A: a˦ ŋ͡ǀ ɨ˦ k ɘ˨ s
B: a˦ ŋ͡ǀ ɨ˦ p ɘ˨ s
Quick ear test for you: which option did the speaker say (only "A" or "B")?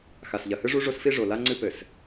B